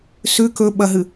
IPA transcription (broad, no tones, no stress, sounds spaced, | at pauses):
s ʉ k ɵ ɓ ɐ ɦ ɨ